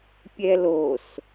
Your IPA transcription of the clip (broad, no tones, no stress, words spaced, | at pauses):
pʲɛlos